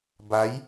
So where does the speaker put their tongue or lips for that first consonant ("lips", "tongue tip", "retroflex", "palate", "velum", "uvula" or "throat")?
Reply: lips